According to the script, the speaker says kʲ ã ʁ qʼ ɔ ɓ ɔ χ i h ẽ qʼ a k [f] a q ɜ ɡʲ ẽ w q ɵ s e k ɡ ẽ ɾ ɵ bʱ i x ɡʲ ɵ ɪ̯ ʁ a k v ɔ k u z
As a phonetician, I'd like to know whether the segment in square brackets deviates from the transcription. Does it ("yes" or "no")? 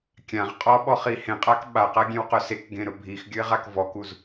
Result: yes